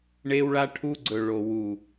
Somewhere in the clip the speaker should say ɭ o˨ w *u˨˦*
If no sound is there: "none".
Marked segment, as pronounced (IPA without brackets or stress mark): u˨